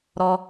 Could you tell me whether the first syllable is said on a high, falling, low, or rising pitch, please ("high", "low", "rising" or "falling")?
high